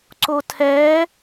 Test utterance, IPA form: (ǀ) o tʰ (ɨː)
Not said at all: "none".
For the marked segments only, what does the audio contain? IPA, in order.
ǀ, ɛː

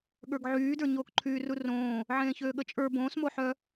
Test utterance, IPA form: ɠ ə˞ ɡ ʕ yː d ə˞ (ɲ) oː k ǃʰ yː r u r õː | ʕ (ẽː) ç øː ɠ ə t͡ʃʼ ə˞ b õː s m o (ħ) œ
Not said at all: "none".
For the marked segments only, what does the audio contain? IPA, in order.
ɲ, ẽː, ħ

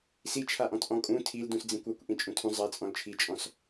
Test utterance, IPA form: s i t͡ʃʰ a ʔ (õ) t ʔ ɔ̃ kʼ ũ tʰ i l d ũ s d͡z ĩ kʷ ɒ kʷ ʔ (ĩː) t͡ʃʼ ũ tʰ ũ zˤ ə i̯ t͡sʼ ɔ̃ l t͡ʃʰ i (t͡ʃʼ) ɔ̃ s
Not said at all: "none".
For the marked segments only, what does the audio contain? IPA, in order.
ɔ̃, ĩ, t͡ʃʼ

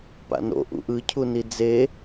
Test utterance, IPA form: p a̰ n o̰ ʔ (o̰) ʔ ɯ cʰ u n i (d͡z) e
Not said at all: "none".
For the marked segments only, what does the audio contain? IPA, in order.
ṵ, d͡z

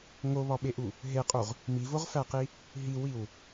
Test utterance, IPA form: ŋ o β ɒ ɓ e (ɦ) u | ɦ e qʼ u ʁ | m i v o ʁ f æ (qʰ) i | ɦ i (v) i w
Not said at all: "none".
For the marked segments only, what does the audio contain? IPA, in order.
ʔ, q, w

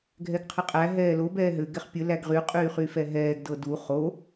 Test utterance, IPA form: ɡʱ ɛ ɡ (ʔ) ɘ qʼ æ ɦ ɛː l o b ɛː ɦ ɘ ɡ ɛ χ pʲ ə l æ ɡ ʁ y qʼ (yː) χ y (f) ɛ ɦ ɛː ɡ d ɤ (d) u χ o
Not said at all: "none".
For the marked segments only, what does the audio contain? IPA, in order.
qʰ, yː, f, d

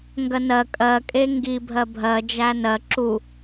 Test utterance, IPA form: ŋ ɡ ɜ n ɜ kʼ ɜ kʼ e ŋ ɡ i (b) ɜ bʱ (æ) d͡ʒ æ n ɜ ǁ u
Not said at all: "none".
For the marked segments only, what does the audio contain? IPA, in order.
bʱ, ɜ

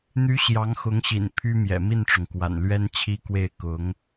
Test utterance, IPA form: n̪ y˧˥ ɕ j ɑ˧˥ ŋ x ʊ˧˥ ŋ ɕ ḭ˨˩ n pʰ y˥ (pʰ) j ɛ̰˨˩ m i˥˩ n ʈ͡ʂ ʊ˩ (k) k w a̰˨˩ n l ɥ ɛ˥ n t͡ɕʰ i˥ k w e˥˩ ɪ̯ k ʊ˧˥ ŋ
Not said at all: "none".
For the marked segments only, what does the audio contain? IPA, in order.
m, ŋ

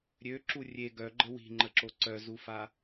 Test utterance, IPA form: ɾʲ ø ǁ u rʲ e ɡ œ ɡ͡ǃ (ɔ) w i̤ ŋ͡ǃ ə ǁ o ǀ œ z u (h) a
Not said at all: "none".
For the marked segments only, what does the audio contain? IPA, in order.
ə, f

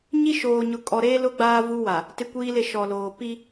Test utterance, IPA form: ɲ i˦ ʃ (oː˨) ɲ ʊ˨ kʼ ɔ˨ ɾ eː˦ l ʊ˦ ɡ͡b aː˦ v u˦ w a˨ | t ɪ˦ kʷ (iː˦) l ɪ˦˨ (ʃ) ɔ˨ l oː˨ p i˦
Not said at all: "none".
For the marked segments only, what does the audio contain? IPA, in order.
oː˨, iː˦, ʃ

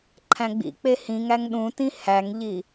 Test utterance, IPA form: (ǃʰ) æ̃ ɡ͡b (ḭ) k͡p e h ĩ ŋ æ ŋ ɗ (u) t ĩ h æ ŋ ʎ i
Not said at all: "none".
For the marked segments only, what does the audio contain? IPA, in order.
ǃʰ, ḭ, ũ

